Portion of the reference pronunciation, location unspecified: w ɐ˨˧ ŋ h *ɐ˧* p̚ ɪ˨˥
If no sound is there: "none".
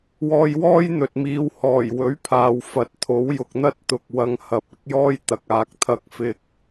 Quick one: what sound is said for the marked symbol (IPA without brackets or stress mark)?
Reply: ɐ˨